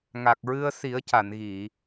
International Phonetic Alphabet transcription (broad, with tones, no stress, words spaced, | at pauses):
ŋa˨˩k̚ɹɨ˧ə̯si˨˩˦ə̯ ca˨˩˨nɣi˨˩˨